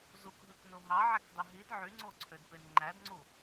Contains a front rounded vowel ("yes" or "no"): yes